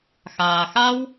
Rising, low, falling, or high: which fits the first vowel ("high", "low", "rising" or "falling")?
low